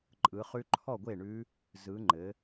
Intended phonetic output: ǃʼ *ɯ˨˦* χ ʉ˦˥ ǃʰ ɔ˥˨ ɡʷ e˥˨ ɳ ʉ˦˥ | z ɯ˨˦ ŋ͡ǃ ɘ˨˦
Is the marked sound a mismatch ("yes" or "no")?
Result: no